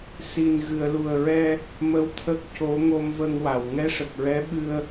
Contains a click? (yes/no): no